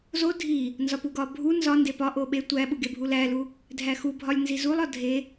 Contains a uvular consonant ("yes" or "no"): no